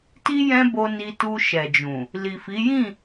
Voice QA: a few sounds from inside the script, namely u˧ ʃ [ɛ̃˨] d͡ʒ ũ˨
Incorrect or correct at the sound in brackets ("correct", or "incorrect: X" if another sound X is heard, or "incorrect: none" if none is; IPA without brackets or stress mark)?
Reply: incorrect: ɛ˨